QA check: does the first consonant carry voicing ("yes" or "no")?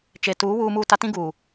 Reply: no